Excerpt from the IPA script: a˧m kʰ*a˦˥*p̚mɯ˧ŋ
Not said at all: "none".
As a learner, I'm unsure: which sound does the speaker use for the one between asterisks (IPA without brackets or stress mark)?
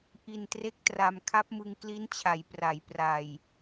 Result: a˦˥